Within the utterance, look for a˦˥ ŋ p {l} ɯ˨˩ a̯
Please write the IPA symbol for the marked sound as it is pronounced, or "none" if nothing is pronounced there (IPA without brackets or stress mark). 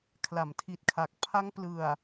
l